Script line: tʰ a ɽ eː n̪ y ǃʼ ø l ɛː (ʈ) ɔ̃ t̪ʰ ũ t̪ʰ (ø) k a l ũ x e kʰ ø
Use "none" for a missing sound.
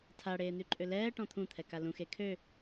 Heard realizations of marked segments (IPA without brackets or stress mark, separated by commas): ʈ, ɛ